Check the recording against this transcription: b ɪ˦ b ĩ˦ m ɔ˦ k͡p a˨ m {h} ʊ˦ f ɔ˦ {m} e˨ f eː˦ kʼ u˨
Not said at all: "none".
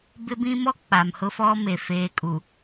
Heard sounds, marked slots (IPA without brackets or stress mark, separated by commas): h, m